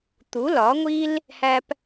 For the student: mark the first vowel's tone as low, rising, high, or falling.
rising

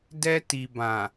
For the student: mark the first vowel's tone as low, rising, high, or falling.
high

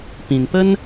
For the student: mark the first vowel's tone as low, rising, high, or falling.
low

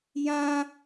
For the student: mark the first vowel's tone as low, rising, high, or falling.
high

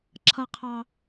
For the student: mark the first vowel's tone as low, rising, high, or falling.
high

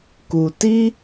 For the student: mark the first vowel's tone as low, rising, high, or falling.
low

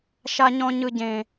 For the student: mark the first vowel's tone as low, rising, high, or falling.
high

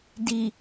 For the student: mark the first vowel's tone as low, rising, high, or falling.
low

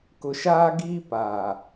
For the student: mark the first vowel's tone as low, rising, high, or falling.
low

